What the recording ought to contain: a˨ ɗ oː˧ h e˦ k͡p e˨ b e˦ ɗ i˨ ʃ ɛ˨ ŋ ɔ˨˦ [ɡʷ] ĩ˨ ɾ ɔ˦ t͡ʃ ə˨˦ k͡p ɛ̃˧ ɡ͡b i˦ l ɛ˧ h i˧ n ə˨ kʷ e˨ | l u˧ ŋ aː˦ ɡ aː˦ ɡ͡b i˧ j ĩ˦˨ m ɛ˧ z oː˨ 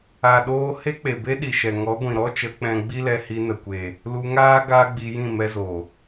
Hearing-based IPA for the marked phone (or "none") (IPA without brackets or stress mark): ɡʷ